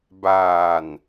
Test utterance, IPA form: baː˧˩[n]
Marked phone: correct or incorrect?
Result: correct